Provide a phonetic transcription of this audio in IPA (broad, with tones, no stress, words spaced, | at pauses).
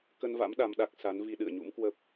kə˧nva̰˧˥m ɗa˧mɗa˦˥k̚ sa˨˦n vi˧ɗɨ̰˧˨ə̯ɲṵ˧˥mkwə˦˥p̚